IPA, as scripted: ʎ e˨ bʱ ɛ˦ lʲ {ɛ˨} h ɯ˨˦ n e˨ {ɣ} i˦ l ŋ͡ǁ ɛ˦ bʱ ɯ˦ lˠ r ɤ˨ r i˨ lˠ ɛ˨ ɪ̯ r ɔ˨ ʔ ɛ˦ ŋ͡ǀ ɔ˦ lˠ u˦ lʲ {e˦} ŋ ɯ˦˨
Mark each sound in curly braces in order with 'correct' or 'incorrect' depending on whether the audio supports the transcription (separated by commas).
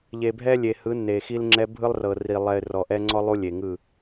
incorrect, incorrect, incorrect